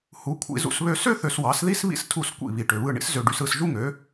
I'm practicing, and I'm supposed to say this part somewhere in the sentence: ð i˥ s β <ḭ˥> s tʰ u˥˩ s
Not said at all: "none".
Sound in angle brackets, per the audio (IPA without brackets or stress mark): ḭ˥